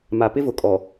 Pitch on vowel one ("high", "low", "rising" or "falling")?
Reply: low